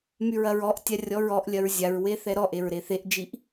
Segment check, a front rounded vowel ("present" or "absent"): present